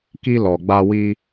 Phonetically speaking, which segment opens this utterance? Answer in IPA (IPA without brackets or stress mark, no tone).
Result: k